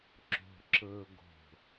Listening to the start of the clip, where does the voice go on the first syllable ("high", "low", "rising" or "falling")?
low